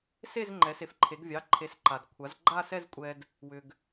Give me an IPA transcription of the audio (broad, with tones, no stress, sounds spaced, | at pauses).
s e˥˧ z ŋ͡ǃ ɛ˩˥ s e˩˥ f ǃʰ e˩˥ ɡ vʲ ɑ˩˧˩ ǃʰ e˩˥ s ǃ a˩ d kʷʰ a˩˥ z ɡ͡ǃ a˥˧ s ɛ˥˧ z kʷʼ ɛ˧ d | w ʏ˧ ɡ